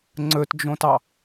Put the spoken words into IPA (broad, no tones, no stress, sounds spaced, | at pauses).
ŋ͡ǀ ɵ t d͡ʒ õ t ɑ